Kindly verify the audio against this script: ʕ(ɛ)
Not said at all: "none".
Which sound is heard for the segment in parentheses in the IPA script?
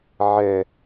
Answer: ɛ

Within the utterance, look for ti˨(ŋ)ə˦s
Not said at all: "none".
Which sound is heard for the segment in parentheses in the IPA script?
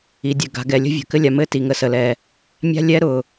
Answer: ŋ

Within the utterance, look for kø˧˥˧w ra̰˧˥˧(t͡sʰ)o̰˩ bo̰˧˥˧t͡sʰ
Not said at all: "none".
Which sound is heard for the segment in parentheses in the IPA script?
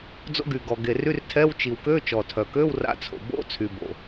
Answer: t͡sʰ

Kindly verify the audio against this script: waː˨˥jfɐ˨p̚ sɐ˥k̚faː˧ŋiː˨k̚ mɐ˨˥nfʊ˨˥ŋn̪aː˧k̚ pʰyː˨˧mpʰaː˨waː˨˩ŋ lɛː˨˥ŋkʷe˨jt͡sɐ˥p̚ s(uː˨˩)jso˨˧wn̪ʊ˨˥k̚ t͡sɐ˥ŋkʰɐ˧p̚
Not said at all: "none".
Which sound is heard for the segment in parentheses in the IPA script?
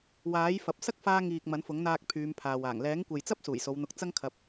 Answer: uː˨˩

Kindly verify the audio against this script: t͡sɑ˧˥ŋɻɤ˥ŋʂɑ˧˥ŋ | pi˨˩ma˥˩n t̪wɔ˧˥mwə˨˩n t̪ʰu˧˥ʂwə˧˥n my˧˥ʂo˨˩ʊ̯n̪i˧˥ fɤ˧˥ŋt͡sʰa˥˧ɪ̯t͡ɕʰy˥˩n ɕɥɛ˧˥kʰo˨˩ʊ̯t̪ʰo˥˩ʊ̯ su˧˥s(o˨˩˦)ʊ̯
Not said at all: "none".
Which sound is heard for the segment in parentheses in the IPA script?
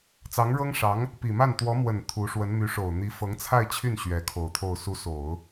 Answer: o˨˩˦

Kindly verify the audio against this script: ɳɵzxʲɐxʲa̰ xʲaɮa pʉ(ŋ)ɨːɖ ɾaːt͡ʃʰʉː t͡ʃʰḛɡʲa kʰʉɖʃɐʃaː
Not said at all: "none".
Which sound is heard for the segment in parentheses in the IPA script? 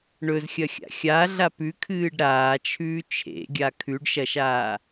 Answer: kʰ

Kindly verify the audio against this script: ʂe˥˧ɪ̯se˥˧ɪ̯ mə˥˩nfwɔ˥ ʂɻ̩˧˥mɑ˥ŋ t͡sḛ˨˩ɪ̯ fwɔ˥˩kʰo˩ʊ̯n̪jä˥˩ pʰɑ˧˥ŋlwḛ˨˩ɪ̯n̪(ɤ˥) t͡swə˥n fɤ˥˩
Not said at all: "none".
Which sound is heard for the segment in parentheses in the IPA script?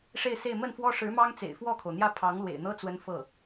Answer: ɤ˥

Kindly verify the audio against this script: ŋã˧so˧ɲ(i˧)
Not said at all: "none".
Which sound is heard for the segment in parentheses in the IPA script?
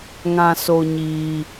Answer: iː˧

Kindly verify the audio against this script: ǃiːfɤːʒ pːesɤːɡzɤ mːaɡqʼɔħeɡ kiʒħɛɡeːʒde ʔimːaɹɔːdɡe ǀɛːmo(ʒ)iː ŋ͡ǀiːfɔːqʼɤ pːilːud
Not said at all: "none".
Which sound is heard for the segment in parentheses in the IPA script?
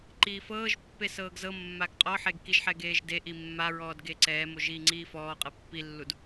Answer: ʒ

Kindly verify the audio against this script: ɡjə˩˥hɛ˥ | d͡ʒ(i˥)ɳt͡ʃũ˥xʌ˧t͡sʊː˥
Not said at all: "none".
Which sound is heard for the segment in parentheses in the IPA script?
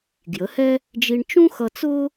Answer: i˧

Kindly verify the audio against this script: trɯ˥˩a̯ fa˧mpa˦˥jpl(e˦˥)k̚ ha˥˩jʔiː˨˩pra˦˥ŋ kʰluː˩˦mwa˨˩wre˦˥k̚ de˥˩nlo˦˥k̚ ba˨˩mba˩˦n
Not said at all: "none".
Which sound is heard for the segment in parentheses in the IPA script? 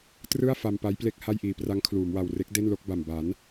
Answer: e˥˩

